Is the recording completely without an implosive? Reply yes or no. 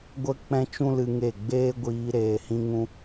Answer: yes